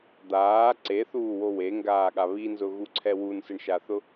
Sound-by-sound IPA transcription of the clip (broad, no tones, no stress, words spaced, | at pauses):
d̪aː ǀeθuːwo weŋɡaːɠa βinzʊɣuǀʰɛ wunsɪɳʃaθʊ